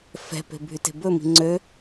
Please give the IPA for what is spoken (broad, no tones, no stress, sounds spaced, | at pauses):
f ɛ̤ p e̤ bʱ y t e̤ b ɵ m i̤ ŋ͡ǀ ø